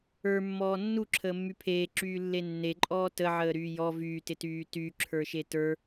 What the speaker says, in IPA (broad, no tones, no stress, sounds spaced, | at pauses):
ə˞ mː ɔː nː u ǁʰ əː mː y pʰ eː ǁ yː lː e nː e ǃʼ ɔː t ə ʕ əː ɾ yː j ɔ v yː t ɪ t yː t y ǁʰ ə˞ ʃ e t ə˞